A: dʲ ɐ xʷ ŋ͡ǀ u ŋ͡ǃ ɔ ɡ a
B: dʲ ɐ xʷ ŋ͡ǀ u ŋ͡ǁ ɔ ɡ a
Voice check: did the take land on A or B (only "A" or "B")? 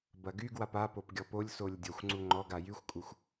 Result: A